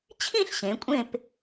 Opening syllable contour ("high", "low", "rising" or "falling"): falling